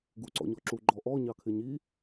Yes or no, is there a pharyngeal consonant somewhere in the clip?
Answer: no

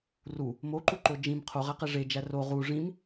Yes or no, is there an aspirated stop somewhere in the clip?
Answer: yes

